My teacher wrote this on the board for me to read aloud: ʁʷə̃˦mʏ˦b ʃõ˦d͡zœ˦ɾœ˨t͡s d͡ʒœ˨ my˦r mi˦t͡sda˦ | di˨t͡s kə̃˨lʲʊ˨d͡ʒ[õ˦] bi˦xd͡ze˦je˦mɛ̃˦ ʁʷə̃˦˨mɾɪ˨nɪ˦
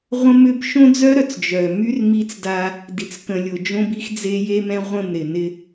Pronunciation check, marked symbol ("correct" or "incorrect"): correct